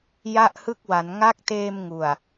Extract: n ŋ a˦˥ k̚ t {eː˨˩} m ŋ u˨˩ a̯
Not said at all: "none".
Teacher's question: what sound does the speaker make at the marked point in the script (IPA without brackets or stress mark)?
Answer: eː˧